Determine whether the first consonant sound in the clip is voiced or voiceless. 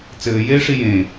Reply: voiceless